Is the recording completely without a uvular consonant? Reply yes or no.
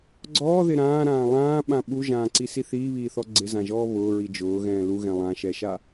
yes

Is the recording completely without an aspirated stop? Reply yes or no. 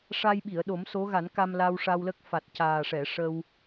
yes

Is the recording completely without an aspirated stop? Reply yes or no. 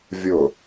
yes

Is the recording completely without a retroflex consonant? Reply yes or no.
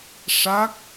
no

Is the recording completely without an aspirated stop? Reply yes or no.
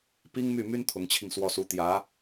no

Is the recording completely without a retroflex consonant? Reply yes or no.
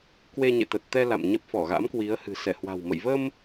yes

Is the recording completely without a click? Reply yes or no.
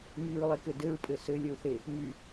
yes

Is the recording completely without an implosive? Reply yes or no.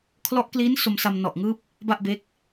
yes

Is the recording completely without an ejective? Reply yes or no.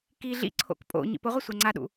no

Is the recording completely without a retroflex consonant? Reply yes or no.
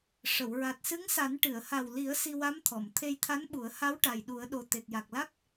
no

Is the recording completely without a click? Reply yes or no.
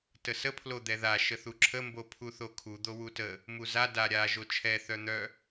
no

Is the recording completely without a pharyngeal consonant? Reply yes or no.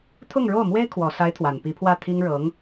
yes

